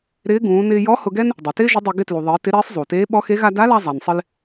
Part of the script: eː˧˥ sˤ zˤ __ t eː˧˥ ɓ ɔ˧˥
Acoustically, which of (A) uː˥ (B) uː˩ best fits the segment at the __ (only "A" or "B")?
B